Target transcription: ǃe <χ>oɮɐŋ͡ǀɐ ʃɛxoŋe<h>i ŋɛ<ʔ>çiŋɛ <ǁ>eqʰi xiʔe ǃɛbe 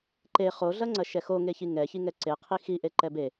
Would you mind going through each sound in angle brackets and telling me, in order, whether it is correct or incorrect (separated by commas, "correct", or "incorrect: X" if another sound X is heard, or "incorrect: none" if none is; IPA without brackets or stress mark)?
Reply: correct, incorrect: ç, incorrect: none, incorrect: ǀ